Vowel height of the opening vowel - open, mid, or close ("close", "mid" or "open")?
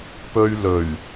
mid